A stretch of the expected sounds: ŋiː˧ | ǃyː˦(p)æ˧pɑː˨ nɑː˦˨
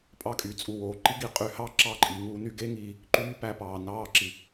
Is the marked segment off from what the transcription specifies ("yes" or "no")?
no